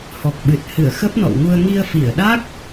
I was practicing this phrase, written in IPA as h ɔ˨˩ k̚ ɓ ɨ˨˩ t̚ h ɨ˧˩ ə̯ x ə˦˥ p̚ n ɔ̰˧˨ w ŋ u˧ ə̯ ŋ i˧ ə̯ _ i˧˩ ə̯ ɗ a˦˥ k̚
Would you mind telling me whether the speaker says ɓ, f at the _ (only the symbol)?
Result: f